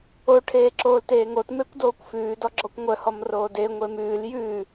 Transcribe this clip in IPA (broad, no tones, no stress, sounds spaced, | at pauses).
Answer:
o ʈʰ eː ǁ oː l t eː ŋ o t m e kʷ d oː kʷ f ʉː d ɔ ɡ͡ǁ ɔ kʷ ŋʷ œ h ɔ m r oː d e ŋʷ e m ʉː l j ʉː